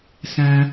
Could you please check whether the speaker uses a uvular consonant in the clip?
no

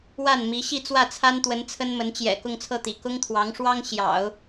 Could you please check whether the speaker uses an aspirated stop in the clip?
yes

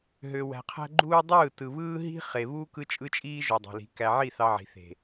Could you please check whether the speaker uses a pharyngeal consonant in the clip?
yes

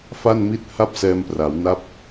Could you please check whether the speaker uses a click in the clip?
no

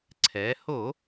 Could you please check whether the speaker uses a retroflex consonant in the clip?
no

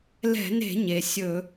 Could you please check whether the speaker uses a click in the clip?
no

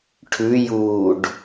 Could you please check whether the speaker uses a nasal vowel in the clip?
no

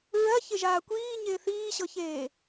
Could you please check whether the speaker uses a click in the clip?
no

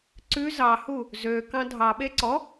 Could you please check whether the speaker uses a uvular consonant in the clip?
no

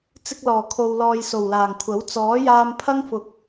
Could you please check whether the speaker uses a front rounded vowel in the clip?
no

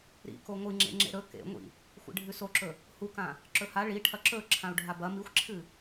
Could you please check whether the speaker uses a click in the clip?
yes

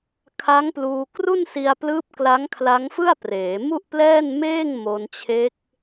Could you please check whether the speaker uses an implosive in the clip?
no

